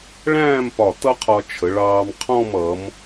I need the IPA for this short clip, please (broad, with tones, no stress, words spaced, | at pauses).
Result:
ɭæ̃ː˥˧mpɒ˧˩ tʌ˥qʰɒ˧ t͡ʃʰə˩˧ɭɑː˧m qʰɔ̃˥˧m ʌ˩˧m